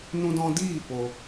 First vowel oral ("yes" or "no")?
no